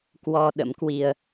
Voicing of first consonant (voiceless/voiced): voiceless